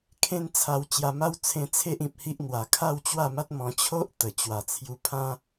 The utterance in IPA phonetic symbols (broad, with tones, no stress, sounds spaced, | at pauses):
kʰ ẽ˦ n t͡sʰ a˧ w t͡ɕ j a˧ m a˦ w t͡sʰ ẽ˧ t͡sʰ e˦ ʔ ĩ˨ p̚ h i˦ ʔ n̪ w a˨˩ kʰ a˥˧ w t͡ɕ w a˥˧ m a˦ t̚ m ɔ̃˧ t͡ɕʰ o˦ ʔ t̪ ə˨˩ t͡ɕ w a˨˩ t͡sʰ j u˧ pʰ ã˦